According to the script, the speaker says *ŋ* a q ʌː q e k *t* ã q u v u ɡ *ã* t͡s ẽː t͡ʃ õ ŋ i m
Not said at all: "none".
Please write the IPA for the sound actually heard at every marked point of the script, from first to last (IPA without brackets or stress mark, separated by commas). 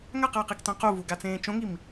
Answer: ŋ, t, a